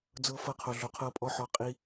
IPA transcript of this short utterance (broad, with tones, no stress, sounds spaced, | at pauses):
d͡z ɤ˦ f ɤ˦ qʰ o˧ ɮ o˧ qʰ ɤ˦ pʼ ɔ˦ ħ ɔ˧ qʼ i˦